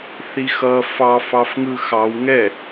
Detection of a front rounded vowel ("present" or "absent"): absent